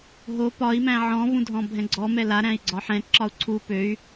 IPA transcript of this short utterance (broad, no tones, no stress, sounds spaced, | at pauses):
ɦ o p ɒ i̯ m æ̃ ʕ ɔ̃ v ũ dʱ ɔ̃ bʱ ɛ̃ ɡ͡ǀ ɔ m ɛ l a ɾ æ̃ i̯ ɡ͡ǀ ɒ ħ ɛ̃ ǁ ɒ u̯ ǀʰ u p ø y̯